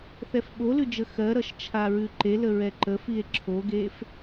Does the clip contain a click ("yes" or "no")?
yes